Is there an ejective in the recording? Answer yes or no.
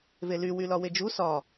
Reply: no